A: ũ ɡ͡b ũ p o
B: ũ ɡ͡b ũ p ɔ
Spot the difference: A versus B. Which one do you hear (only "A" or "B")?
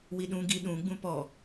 B